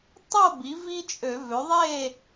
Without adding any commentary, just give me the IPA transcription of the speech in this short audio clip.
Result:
tˤo˥˨bi˩˥ vi˦t͡ʃʼø˧˩˧vø˩˥ ðˤe˥˨

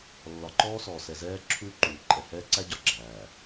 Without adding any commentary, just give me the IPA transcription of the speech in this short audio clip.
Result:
lːɒ˨ǃɔː˦sɔː˨ sɛ˨zɛː˦ ǁʰuː˦ǃuː˨ǃʼɛ˨ hɛː˦ǀæ˦ ɟɒ˨ɡ͡ǁæː˨

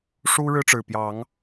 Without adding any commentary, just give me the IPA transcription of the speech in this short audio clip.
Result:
ʂu˦ ɻɻ̩˦ʈ͡ʂɻ̩˨˩pjɑ˨˦ŋ

